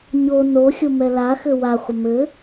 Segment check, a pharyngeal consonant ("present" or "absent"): absent